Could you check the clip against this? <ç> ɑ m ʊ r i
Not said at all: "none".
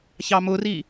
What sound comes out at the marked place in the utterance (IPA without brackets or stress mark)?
ç